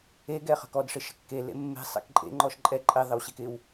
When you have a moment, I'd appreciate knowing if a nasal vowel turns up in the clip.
no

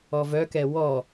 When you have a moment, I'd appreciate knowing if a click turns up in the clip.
no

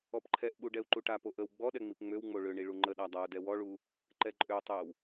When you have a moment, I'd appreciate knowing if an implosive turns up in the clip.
yes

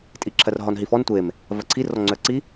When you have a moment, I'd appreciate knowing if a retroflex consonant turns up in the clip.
no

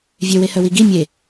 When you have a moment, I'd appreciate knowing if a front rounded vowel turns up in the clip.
yes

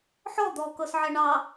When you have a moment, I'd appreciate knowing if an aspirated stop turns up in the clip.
no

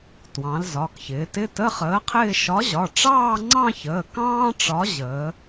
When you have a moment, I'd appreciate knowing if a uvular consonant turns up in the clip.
yes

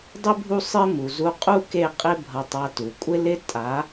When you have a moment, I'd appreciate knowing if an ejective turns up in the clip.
yes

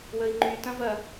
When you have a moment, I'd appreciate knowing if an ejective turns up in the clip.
no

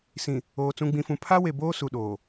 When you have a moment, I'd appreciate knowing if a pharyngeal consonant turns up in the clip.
no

